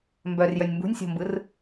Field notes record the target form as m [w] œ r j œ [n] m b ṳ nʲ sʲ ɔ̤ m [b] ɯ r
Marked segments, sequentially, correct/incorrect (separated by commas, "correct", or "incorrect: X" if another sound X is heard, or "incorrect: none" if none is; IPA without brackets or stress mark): incorrect: b, incorrect: nʲ, correct